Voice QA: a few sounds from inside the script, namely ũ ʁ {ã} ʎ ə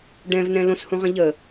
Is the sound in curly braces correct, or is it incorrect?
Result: incorrect: ə̃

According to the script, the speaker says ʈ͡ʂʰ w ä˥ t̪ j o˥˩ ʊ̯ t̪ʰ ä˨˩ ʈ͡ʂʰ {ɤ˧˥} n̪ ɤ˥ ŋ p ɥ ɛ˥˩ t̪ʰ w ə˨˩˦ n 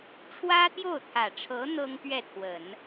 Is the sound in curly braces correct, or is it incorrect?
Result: correct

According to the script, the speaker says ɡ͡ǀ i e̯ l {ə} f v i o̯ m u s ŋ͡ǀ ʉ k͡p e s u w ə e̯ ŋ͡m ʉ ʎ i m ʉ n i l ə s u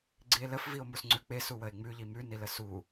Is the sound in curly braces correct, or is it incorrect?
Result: correct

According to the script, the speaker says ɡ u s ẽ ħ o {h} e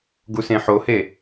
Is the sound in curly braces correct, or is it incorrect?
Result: correct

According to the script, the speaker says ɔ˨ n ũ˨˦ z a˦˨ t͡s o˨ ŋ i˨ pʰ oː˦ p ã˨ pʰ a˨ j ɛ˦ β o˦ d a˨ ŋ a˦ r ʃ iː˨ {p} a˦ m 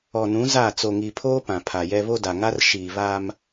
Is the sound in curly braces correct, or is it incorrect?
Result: incorrect: β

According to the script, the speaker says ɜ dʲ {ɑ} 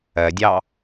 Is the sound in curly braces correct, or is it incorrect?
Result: correct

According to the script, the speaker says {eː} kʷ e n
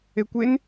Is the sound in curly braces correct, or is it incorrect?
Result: incorrect: e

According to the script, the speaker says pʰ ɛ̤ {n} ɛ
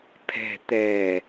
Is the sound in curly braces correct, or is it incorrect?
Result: incorrect: t̪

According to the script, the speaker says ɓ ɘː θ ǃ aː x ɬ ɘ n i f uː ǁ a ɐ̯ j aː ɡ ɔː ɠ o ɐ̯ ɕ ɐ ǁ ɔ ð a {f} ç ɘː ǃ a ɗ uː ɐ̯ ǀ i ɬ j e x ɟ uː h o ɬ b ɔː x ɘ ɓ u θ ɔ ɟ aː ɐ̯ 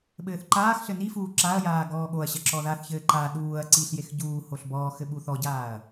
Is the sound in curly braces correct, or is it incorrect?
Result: incorrect: θ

